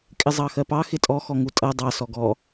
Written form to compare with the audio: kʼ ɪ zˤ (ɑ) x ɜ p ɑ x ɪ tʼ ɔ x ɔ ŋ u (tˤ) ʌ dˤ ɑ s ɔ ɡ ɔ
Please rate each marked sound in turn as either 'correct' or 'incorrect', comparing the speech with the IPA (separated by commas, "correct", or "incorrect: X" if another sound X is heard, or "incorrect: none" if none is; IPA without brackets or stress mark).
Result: correct, incorrect: tʼ